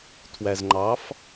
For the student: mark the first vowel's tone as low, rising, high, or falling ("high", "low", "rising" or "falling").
low